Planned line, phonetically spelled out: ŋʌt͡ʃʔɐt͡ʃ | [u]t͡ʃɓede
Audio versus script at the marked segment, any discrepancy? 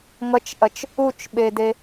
no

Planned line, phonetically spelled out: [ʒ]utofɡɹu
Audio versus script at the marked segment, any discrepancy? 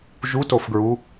no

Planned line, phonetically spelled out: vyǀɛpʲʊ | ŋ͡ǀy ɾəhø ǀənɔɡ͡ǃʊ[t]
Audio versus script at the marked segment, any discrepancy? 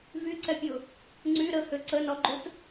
no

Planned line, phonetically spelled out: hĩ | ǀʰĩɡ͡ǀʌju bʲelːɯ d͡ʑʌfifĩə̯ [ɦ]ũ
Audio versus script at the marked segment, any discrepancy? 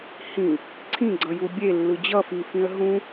no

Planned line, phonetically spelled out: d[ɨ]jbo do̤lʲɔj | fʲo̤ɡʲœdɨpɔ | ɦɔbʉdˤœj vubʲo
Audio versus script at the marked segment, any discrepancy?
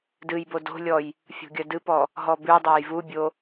no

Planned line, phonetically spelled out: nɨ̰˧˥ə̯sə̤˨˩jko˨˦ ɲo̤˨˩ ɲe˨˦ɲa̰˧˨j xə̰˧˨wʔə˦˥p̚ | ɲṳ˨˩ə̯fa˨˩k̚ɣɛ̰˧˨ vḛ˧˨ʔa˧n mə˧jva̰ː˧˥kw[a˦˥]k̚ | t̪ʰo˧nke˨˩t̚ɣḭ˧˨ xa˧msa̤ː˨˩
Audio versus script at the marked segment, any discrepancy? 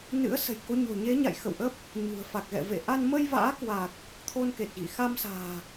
yes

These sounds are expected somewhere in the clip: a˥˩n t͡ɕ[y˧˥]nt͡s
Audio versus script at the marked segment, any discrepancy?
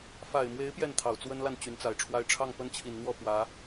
no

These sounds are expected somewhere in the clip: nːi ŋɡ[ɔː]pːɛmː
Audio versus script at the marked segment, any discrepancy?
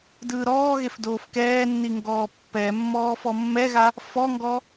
no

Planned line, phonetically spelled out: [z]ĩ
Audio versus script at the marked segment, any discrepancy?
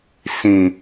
yes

